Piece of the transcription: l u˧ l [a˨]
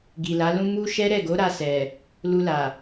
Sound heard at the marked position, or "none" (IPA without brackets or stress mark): a˨